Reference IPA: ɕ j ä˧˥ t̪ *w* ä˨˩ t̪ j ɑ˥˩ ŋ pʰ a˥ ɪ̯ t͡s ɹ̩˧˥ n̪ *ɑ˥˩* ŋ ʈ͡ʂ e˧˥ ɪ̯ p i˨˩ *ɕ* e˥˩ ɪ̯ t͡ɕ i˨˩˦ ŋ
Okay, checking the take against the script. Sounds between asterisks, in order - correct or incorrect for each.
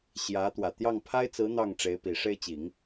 correct, correct, incorrect

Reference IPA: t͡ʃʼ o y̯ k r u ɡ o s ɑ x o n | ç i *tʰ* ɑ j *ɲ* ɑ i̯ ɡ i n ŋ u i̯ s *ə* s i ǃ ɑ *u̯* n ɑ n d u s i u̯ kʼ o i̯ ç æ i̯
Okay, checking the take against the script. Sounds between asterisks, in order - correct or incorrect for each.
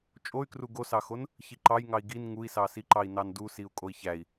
incorrect, incorrect, incorrect, incorrect

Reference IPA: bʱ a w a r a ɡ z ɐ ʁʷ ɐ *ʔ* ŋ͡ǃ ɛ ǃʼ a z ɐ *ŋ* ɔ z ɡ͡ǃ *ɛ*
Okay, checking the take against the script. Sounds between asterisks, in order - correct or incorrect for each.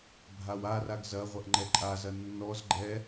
correct, incorrect, correct

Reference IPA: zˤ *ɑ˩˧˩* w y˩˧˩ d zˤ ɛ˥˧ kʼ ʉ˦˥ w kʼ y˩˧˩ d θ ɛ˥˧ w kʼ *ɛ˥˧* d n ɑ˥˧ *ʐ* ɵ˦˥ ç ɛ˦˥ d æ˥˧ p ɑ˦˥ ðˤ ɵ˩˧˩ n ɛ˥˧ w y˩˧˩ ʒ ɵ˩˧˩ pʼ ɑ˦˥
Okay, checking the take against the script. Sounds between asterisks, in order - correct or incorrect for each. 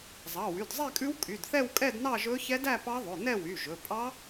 correct, correct, incorrect

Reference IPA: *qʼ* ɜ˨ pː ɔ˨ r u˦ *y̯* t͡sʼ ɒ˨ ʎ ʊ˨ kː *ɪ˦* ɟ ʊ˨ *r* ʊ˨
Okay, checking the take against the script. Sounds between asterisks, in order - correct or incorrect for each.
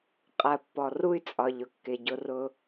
correct, correct, incorrect, correct

